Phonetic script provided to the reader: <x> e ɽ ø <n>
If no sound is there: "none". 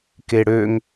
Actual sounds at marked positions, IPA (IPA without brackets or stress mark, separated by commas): k, ŋ